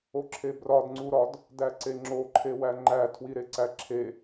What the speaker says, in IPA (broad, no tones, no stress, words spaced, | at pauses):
oǁʰebrɒd ŋ͡ǀuɾɒd | dæǀeŋ͡ǁo ǃʰewæŋ͡ǃæ tʰwiɾeǀæǁʰe